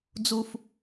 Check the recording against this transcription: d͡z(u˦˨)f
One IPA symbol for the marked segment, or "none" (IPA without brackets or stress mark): u˦